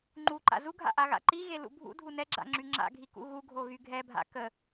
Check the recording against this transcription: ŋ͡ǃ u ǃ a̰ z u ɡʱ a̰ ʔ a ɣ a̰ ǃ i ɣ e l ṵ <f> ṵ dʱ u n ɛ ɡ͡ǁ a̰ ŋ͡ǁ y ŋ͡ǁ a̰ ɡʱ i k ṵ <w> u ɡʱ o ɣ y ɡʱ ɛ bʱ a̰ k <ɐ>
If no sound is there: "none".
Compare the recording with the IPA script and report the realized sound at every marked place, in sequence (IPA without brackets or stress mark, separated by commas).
bʱ, ɣ, ə